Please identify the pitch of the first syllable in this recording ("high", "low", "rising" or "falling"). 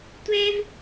high